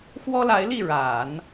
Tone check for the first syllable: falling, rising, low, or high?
high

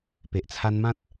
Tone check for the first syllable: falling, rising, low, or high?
low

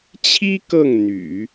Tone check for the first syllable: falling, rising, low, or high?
high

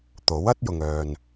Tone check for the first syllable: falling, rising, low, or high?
rising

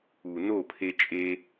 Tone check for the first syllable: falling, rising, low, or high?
low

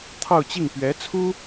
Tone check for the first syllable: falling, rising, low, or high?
falling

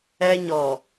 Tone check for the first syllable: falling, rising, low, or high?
high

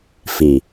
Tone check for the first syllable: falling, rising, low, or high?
low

